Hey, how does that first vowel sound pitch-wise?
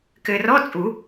low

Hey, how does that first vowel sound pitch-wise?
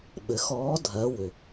rising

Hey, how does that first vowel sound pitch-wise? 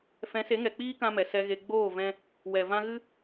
rising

